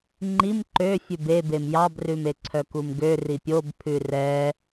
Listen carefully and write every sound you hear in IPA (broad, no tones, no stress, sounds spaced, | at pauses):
ŋ͡ǃ i m ǃ ø fʲ ʉ b e b e m j ɑ b r ʉ m e ǀʰ œ k u m ɡ ø r i pʲ o b pʰ ʉ r ɛ